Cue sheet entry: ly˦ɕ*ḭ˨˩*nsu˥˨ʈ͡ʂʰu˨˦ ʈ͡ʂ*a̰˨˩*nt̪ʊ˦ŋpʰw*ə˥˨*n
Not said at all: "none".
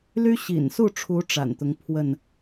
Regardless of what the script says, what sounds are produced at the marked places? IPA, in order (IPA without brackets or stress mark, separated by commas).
ḭ˨˩, a̰˨˩, ə˥˨